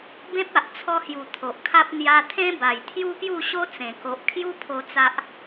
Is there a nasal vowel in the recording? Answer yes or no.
yes